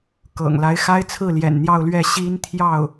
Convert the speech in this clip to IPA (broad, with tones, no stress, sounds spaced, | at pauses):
k ɤ̰˨˩ ŋ l a˧˥ ɪ̯ x a˥ ɪ̯ t͡sʰ ɹ̩˥˩ l j ɛ̰˨˩ n n̪ j ɑ˥˧ ʊ̯ l ɥ ɛ˥˩ ɕ i˥ n t̪ʰ j ɑ˥˩ ʊ̯